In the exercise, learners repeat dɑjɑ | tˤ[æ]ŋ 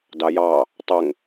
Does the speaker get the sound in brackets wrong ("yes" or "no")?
yes